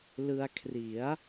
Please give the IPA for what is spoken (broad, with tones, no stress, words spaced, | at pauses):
lɯ˧a̯kʰri˩˦a̯